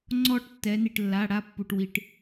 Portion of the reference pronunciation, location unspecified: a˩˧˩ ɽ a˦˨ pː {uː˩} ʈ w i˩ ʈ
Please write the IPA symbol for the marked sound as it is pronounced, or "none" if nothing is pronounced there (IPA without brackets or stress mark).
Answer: u˩